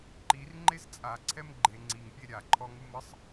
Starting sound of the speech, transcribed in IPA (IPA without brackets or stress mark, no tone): ǃ